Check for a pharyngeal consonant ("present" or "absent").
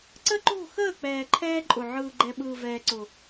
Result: present